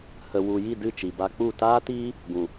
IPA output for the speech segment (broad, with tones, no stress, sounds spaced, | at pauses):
h ə˨ w u˨ j i˦˨ d ɨ˦˨ t͡ʃ i˨ b a˧ k͡p u˦˨ t aː˦ t iː˦ | ɡ ũ˨